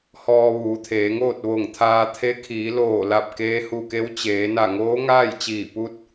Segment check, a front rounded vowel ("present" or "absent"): absent